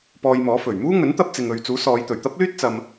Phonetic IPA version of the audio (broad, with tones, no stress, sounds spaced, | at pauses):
p ɔː˧ j m ɔː˨˥ f ɵ˨˩ ɥ m uː˥ ŋ ɵ˨˥ n t̪ ɐ˧ p̚ t͡s ɪ˨ ŋ ɵ˨ ɥ t͡s uː˨˥ s ɔː˨˧ j t̪ ɵ˨˩ ɥ t̪ ɐ˥ p̚ l yː˥ t̚ t͡s ɐ˧ m